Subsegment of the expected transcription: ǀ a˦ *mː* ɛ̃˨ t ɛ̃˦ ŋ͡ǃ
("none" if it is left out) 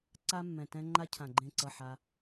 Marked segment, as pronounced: mː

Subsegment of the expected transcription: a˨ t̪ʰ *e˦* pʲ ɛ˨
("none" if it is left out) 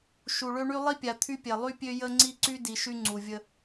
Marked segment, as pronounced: y˦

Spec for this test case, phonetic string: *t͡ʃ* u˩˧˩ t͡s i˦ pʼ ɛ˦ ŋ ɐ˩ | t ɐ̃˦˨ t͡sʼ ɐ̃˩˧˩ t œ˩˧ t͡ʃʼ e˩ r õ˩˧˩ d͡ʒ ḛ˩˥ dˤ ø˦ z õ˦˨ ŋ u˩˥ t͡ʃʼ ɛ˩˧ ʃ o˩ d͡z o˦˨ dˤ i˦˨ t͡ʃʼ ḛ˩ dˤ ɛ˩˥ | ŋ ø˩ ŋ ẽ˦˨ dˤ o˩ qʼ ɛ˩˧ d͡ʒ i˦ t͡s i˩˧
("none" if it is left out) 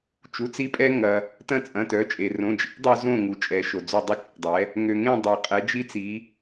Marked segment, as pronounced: t͡ʃ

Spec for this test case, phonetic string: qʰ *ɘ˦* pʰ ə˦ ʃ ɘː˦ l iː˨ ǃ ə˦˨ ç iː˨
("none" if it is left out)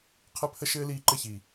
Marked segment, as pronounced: ɘ˦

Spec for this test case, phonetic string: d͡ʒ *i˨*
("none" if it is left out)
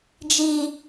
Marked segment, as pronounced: i˦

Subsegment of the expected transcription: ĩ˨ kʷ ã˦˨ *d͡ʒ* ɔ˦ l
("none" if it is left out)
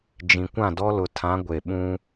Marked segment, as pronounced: d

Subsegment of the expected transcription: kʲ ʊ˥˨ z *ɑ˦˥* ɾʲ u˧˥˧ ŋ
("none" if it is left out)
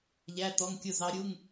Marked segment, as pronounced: ɑ˦˥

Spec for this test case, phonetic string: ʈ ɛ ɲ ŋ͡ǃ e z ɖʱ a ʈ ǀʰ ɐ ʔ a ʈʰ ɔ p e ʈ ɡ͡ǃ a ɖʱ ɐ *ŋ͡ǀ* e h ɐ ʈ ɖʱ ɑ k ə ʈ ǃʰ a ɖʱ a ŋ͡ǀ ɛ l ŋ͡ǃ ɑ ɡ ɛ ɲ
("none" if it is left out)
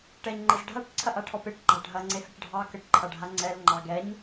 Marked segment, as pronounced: ŋ͡ǀ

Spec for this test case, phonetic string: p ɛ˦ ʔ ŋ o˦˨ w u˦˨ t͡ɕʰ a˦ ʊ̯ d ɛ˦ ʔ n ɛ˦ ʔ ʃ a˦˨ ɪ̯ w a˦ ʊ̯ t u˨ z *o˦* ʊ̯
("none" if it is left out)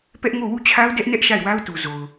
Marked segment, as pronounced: o˨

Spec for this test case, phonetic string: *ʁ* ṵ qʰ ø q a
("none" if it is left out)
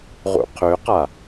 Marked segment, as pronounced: ʁ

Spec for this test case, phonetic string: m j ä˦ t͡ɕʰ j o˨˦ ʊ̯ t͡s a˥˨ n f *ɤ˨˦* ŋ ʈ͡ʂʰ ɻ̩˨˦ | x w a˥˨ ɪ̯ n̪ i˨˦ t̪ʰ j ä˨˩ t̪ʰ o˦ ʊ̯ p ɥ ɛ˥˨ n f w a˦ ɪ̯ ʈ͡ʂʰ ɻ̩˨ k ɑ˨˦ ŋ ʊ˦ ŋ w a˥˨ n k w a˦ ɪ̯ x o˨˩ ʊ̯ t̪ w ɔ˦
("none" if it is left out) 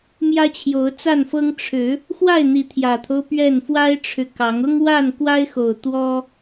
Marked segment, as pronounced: ɤ˦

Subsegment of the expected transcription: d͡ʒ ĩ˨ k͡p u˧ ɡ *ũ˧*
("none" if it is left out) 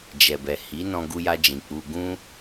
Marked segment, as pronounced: ũ˦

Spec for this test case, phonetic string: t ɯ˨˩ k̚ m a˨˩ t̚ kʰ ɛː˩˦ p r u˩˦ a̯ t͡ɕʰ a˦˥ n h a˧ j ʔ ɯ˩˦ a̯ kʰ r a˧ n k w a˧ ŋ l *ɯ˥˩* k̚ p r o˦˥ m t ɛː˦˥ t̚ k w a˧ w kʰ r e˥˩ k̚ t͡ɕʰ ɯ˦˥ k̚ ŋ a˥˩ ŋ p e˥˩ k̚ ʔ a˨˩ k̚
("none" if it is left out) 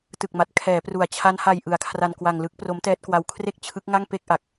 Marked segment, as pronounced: ɯ˦˥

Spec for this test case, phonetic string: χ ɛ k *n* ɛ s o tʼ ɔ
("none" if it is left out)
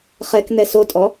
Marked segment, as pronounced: n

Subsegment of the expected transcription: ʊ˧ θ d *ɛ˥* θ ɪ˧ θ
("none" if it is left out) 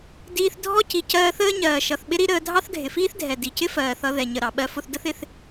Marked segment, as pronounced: ə˥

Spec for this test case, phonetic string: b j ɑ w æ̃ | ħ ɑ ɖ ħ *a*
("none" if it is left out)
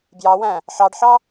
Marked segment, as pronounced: ɑ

